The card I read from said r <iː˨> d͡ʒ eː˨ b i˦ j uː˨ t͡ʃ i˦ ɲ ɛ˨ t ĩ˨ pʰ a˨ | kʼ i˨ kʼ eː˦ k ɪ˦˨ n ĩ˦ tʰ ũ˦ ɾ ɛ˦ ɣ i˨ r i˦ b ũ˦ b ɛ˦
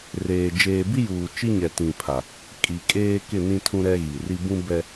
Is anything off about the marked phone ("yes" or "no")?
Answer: yes